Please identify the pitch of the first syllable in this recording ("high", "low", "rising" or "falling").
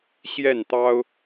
falling